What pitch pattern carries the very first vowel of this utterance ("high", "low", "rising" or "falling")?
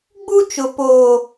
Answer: high